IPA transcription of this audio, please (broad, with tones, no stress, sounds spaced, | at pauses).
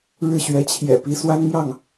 ɻ ɻ̩˥˩ ɕ ɥ ɛ˧˥ t͡ɕʰ j ɛ̰˨˩ p i˧˥ s w a˥ n m j ɑ˥˩ ŋ